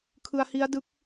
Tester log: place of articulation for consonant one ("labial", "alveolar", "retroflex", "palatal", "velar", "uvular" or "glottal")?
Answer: velar